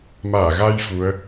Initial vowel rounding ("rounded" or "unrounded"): unrounded